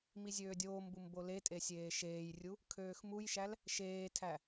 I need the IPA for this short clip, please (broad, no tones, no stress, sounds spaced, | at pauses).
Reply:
m i zʲ øː dʲ oː m b u m b o l e tʼ e sʲ eː ʃ eː j rʲ u | kʰ øː x m u j ʃ æ l | ʃ eː tʰ æ